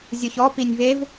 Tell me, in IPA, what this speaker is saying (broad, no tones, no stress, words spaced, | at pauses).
zʲoçɔ pinʲvev